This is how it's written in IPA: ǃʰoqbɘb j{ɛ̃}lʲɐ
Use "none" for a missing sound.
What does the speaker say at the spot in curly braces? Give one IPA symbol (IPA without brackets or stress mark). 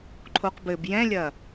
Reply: ɛ̃